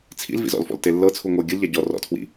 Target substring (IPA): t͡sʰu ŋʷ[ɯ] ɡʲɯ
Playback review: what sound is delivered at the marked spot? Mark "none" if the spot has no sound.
ɤ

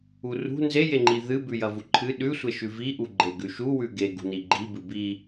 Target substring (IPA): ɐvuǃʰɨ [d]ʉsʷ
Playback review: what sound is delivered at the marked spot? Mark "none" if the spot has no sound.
ɗ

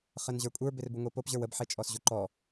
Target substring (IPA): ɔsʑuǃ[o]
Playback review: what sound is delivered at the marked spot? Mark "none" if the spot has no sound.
ɔ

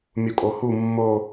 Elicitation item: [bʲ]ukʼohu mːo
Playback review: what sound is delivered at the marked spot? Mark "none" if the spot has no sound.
mʲ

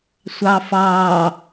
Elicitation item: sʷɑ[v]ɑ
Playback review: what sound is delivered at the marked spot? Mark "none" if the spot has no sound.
f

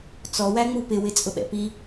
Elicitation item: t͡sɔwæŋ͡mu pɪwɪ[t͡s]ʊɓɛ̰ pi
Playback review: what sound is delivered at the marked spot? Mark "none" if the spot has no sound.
t͡sʼ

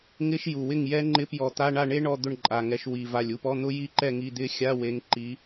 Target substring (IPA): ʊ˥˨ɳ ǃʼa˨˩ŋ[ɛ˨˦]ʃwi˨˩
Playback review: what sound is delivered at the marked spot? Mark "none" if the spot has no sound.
ɛ˨˦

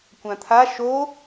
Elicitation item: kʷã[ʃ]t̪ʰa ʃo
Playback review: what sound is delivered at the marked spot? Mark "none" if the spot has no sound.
none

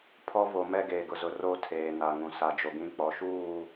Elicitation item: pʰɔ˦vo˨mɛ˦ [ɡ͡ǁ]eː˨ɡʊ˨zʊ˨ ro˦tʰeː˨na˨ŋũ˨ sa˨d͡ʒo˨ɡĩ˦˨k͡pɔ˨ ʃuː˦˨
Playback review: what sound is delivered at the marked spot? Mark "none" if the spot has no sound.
ɡ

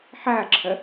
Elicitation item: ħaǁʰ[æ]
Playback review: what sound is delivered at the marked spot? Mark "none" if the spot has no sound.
ɐ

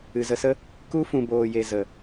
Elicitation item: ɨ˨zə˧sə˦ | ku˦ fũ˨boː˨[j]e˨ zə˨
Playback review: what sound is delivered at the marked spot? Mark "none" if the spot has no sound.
j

